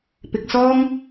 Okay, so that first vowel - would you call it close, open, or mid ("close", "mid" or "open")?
close